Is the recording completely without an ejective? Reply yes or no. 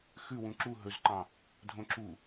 yes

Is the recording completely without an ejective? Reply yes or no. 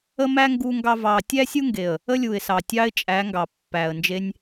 no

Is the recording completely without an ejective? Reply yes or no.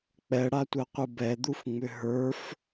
yes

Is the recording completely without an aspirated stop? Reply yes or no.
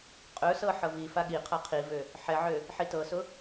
no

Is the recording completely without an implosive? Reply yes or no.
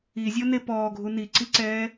yes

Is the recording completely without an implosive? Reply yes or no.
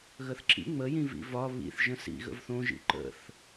yes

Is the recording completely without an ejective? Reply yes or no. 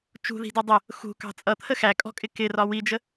no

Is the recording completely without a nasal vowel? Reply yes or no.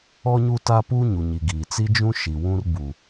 no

